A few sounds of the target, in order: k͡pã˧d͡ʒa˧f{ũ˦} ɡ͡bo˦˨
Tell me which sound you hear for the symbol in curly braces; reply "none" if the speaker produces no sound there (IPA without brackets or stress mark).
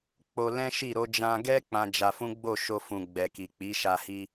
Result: ũ˦